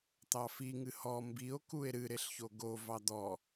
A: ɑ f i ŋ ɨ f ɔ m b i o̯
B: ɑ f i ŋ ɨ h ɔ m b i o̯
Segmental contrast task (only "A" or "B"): B